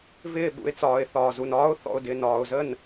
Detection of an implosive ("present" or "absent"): present